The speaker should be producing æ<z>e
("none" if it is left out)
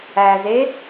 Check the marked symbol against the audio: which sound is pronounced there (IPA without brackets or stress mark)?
z